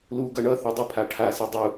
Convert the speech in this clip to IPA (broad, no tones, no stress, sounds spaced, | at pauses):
l u ɡ ʌ ɳ ʌ θ o dˤ i pʰ a ʈʰ a s e dˤ u